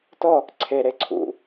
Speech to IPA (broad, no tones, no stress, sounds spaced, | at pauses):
t ɔ | ǀʰ e ɾ e ǀʰ ṵ